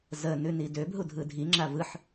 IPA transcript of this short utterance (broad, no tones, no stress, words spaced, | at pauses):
zə nʉnidøb ɦudʱɯdʱi ŋ͡ǁavɯħ